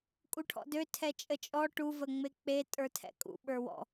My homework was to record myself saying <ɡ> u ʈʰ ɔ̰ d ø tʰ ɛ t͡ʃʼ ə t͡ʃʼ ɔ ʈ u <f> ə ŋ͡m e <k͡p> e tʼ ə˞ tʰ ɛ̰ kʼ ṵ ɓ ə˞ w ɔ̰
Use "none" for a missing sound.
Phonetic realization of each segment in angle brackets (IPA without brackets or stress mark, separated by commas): kʼ, v, k͡p